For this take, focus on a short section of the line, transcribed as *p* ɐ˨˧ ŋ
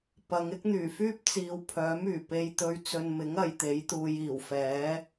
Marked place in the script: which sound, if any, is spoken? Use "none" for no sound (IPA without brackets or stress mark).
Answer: p